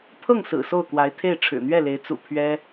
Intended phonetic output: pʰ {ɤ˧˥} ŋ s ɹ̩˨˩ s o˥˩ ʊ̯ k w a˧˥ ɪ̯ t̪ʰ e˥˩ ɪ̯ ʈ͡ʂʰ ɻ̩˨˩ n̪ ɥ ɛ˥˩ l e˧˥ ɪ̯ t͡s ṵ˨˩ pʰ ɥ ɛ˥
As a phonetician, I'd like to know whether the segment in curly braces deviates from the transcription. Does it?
yes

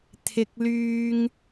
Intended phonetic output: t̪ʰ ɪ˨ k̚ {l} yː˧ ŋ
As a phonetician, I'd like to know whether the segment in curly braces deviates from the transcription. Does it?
no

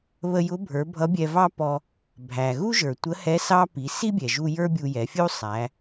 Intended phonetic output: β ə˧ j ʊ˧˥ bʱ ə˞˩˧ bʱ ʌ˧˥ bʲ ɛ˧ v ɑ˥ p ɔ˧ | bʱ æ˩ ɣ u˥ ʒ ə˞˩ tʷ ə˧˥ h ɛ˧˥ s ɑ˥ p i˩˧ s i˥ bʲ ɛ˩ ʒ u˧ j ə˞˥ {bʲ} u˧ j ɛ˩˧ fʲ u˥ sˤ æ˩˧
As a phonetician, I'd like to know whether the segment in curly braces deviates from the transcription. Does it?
no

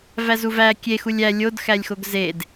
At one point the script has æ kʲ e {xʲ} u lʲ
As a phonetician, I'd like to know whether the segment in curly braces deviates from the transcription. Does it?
yes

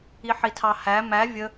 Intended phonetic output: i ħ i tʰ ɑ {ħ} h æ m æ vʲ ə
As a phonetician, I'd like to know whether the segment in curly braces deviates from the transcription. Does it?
yes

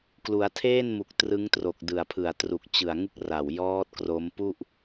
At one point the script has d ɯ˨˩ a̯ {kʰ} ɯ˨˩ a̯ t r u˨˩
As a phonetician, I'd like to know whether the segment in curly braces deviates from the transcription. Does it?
yes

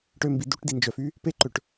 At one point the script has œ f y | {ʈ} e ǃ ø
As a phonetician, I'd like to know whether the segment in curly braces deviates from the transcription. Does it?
yes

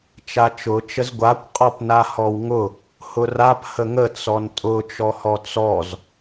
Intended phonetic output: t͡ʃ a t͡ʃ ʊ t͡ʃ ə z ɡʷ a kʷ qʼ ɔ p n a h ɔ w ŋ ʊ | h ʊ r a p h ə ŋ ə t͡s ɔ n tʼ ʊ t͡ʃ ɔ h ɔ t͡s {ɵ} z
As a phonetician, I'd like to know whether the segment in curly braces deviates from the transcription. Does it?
yes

